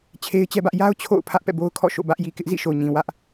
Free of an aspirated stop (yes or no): no